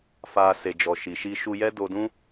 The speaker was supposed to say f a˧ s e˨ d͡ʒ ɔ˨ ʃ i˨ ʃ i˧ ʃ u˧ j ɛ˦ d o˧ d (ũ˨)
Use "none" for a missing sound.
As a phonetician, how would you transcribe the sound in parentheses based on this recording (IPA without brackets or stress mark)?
ũ˦